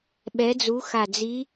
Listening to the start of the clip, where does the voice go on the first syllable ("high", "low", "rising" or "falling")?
rising